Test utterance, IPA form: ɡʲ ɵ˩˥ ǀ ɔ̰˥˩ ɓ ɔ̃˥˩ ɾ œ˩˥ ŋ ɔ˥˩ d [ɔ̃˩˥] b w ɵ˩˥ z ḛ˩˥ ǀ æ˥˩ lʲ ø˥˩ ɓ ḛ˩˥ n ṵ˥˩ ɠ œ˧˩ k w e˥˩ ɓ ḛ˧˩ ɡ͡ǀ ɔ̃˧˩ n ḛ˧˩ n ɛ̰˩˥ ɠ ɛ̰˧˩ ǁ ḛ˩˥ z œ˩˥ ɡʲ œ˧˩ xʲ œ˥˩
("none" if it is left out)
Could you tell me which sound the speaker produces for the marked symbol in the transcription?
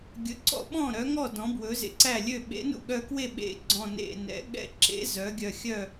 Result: ɔ̃˩˥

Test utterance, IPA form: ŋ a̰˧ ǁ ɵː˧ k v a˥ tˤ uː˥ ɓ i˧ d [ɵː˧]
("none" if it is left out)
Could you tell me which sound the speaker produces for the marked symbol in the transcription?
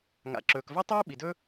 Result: ɵː˥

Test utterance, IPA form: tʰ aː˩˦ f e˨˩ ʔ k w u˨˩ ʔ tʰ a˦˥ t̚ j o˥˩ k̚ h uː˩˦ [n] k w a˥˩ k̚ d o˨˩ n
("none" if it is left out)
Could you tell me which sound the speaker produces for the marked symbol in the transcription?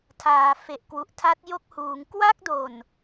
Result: ŋ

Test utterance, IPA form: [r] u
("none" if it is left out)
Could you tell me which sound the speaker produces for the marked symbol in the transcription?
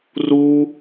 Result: r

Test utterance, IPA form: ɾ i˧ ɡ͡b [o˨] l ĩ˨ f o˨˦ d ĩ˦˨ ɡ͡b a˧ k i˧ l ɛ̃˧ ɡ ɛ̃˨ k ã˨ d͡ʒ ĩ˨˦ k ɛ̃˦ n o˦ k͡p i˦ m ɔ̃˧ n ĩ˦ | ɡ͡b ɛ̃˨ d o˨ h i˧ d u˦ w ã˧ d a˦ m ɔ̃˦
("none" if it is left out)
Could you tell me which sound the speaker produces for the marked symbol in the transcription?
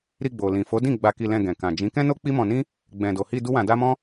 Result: o˨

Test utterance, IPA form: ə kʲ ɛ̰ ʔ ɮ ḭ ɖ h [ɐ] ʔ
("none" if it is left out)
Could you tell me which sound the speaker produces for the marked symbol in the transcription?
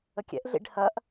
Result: ɐ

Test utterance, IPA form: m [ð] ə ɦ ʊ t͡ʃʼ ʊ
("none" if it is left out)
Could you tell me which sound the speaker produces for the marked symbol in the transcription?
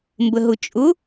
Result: b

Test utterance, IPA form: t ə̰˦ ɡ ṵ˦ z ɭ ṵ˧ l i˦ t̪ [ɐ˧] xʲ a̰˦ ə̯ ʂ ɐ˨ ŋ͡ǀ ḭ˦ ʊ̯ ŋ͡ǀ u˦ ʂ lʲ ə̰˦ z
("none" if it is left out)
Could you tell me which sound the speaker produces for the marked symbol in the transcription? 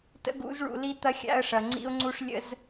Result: ɐ˦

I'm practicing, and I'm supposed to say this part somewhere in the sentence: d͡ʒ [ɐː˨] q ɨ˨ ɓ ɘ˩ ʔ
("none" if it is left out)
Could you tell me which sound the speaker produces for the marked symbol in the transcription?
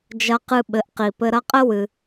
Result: ɐ˨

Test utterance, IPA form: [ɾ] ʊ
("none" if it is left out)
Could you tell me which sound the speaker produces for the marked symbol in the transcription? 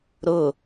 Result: ɾ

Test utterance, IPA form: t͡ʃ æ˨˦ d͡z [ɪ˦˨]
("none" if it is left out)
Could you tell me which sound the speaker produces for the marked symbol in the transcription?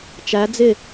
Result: ɪ˦˨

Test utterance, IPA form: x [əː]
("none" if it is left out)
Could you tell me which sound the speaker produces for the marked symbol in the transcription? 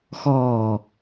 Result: ɔː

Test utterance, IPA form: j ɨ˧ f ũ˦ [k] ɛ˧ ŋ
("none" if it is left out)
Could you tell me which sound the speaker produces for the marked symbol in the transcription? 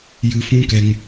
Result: k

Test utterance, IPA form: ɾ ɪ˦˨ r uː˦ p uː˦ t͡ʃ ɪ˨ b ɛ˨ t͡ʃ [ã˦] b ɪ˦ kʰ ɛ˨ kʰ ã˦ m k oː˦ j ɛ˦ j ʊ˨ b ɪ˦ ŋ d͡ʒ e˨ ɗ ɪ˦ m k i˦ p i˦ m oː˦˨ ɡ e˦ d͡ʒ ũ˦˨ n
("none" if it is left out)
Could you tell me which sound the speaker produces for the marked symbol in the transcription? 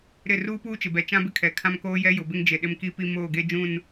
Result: ã˦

